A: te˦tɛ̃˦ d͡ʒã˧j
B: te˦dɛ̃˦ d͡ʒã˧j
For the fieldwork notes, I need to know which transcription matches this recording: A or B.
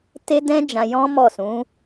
B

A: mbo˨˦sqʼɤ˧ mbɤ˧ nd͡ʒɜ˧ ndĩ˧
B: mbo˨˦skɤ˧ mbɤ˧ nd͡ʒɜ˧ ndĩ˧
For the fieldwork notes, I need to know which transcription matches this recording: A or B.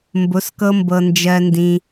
B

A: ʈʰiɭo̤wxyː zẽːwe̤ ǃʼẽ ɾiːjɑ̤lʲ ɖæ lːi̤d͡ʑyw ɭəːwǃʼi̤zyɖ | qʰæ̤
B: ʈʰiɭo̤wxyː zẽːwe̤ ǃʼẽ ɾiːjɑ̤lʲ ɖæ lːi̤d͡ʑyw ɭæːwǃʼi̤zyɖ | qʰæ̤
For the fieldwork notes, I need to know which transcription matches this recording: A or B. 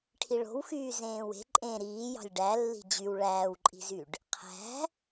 B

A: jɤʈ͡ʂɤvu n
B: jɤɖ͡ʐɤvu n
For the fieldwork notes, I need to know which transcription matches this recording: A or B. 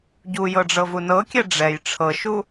B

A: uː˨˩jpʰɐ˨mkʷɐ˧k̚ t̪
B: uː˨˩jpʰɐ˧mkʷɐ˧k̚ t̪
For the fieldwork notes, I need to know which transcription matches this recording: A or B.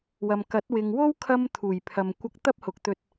A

